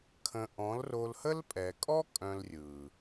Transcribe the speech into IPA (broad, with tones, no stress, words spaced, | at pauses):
kʰə̃˧ ʔɔ̃˨˦lro˧lhə˦l pʼɛ˨kʼɔ˦ kʼœ̃˧lrʲɯ˨